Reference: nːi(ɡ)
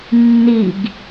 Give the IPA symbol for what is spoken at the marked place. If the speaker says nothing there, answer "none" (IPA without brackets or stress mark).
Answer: ɡ